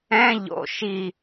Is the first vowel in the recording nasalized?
yes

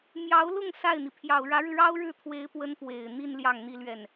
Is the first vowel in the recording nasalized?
no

